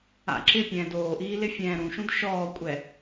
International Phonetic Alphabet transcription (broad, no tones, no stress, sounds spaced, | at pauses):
a̰ ǁ ɪ pʲ ɛ̃ː d oː ʔ iː l ɪ fʲ ɛ̃ː ɾ ũ ʃ ũ d ʃ ɔː kʷʼ ɛ